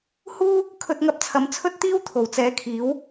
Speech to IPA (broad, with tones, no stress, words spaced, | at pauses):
huː˥ | kʰɵ˧t̚ŋɐ˧p̚t͡sʰɐ˨˧m t͡sʰɵ˥t̚t̪iː˥w t̪ʰo˨˩wt͡sɛː˨˧kʰiː˨˥w